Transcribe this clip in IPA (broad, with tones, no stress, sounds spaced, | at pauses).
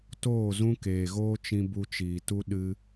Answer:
t oː˦˨ z ũ˦ k eː˨ ɣ oː˦ t͡ʃ ĩ˧ b u˧ t͡ʃ iː˨ t u˦ ɗ ɨ˧